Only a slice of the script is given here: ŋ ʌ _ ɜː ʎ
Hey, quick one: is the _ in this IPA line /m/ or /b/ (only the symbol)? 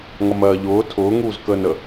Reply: m